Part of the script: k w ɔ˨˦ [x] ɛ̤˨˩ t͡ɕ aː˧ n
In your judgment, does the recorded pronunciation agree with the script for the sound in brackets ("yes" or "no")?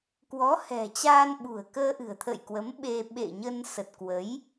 no